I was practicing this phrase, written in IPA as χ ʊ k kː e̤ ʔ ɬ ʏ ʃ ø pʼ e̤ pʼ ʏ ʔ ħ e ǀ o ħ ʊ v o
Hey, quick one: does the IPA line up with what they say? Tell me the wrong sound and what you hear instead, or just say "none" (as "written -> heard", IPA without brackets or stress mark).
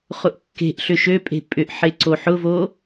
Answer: k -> ʔ